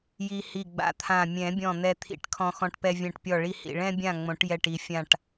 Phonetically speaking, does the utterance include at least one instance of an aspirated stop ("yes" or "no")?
yes